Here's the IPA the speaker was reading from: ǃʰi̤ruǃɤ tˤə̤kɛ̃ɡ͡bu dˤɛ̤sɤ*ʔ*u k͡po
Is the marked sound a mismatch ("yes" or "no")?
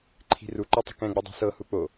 yes